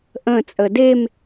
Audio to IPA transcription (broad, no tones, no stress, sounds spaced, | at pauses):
ʔ ə̃ t͡sʼ ə d e m